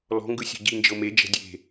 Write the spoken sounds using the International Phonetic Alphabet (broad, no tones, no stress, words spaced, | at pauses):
lɔ̤ŋɡɯ sʲɔ̤ɟind͡ʒɤ med͡ʒɛ̤ dʲe̤